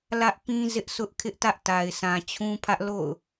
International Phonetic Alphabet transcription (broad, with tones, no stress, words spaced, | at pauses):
lä˦ʔpĩ˦ zɪ˦ʔsʰʊ˦ʔ kʰɪ˦ʔtä˦ʔta˨ɪ̯ sʰã˨t͡ɕʰũ˦pʰä˦ʔ lo̰˦˨ʊ̯